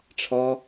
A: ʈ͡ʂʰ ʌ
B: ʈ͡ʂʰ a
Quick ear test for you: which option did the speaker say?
A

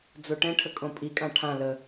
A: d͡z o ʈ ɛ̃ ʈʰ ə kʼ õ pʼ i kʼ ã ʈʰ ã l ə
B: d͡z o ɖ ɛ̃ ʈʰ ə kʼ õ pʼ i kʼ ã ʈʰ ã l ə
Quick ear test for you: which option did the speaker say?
A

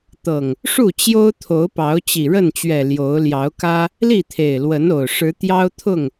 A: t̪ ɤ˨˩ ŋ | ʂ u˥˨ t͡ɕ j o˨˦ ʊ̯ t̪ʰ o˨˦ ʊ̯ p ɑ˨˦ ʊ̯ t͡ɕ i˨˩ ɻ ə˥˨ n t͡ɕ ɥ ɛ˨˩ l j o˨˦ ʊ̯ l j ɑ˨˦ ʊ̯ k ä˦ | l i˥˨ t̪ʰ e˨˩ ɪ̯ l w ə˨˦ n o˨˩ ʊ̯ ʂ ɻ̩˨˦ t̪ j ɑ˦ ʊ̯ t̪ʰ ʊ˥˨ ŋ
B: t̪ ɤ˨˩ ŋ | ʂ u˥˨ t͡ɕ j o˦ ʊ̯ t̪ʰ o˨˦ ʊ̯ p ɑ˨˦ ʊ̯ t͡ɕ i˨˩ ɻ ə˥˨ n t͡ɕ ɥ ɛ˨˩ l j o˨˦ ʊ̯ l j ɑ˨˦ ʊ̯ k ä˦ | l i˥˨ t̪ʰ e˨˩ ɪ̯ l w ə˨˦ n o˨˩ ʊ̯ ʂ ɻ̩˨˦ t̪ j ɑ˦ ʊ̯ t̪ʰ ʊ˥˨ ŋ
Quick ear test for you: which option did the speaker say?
B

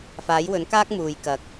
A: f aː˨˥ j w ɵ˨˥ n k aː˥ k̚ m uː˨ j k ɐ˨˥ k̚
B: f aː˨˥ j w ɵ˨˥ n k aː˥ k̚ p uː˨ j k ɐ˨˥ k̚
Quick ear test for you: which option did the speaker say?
A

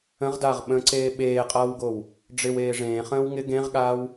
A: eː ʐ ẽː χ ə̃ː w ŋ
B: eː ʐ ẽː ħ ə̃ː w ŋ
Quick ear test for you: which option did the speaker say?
A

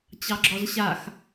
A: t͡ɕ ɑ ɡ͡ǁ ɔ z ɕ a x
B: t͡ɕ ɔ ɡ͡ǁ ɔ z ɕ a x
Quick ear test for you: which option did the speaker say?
A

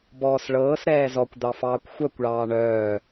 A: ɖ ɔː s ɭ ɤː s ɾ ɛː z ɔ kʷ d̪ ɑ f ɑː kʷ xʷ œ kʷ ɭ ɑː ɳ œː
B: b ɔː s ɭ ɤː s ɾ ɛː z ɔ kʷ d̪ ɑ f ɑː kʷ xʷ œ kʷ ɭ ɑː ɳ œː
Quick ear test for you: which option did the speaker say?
B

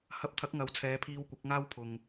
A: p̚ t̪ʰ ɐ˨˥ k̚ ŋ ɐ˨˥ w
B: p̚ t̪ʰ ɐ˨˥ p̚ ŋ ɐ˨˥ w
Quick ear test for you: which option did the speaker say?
A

